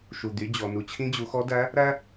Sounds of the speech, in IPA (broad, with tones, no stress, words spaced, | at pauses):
ʃu˩d̪y˩˧ d͡ʑɔ˩nu˩ t͡ɕʰĩ˧˥d͡ʑu˩˧xɔ˧˥dæ˧˥ | ɾæ˥